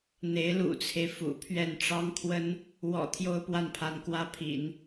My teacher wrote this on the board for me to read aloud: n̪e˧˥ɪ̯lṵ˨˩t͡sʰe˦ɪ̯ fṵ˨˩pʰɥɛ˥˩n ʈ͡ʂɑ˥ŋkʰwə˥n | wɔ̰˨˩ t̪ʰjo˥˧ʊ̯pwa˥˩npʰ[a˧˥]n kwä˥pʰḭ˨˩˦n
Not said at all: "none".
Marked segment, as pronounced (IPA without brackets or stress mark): a˧˥